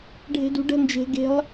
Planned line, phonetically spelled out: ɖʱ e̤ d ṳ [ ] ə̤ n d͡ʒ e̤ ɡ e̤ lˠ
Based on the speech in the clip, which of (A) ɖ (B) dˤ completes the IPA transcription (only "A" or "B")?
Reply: A